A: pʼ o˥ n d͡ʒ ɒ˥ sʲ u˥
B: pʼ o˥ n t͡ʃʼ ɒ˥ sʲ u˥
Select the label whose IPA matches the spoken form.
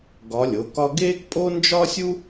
A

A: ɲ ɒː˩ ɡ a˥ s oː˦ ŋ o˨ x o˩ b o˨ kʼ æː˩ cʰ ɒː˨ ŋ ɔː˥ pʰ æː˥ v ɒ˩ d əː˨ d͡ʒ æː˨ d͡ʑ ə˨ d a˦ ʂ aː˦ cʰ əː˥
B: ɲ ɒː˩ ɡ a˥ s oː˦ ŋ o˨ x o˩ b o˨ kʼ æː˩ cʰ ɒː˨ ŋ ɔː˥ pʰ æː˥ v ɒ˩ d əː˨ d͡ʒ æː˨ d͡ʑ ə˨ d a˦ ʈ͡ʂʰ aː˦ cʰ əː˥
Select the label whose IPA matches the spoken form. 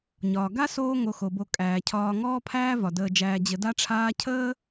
B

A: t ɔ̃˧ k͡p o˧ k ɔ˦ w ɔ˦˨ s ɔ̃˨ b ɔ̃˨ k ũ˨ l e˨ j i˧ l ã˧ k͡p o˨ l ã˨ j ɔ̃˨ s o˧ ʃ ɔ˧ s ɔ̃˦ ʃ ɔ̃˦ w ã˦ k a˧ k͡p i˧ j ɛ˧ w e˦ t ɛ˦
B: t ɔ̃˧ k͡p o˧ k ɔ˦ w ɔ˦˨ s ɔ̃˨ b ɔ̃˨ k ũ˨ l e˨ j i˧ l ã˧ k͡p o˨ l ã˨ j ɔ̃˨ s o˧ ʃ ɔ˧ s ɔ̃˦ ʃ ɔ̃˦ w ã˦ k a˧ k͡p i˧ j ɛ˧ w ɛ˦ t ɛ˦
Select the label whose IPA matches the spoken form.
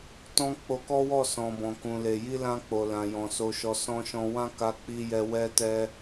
B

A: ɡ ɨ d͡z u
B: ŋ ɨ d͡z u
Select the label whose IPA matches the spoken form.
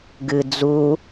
A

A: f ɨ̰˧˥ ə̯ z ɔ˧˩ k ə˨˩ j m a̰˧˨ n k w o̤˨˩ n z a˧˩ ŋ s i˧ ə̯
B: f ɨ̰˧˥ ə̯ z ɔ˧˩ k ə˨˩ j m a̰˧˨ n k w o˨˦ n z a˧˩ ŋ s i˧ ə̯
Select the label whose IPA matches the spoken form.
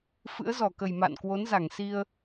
B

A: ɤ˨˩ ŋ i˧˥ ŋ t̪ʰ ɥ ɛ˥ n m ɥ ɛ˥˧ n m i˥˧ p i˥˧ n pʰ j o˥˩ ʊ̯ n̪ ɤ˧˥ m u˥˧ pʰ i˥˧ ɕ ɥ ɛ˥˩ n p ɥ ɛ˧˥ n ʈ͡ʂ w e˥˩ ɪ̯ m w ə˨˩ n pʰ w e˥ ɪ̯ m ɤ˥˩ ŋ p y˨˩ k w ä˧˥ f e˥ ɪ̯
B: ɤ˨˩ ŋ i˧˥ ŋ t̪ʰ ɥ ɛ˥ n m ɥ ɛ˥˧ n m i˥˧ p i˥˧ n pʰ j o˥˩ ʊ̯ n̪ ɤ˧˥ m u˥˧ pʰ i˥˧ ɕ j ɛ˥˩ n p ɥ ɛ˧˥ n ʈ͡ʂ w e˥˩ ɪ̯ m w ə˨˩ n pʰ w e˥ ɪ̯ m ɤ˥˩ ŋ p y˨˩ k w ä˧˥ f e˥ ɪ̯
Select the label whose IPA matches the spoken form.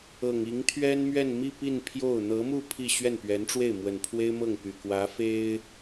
A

